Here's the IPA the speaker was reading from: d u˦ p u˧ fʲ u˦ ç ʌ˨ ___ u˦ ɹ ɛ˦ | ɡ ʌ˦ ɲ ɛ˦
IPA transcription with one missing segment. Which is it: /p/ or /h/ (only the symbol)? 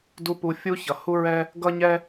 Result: h